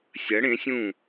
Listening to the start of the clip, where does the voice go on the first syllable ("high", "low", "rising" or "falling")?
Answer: rising